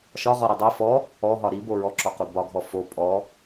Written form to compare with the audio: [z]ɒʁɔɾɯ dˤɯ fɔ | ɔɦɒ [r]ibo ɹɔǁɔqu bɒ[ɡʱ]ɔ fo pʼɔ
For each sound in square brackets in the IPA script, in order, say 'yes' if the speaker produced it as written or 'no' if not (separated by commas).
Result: no, no, yes